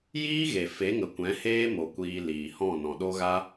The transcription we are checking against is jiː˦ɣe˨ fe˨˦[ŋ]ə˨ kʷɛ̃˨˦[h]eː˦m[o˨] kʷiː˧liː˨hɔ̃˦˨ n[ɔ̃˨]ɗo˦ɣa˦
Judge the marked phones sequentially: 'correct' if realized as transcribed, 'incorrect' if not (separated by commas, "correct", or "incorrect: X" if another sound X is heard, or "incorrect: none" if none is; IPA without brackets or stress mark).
correct, correct, correct, correct